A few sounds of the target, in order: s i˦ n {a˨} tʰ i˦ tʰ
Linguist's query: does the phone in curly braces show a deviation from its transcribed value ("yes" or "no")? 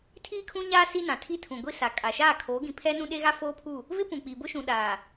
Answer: yes